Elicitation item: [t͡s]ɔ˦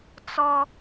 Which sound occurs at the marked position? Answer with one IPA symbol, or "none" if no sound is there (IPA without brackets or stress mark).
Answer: t͡s